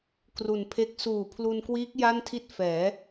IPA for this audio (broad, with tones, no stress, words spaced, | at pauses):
kru˨˩npʰe˦˥k̚ suː˨˩ pʰlu˧nkwiː˦˥k̚ ja˥˩ntʰi˥˩t̚ fɛː˩˦